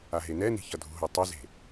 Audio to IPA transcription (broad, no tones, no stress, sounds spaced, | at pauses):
a ɦ e n ɛ n i̤ ç ʌ dʱ ṳ ɦ o tˤ ʌ z e̤